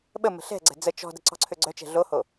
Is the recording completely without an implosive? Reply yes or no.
no